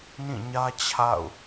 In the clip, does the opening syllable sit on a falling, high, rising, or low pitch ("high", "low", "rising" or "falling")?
falling